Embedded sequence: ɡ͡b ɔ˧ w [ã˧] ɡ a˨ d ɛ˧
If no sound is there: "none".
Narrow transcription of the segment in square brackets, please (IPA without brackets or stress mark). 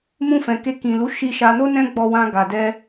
ã˧